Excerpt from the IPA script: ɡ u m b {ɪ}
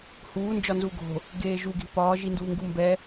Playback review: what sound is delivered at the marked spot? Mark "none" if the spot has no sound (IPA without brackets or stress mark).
ɛ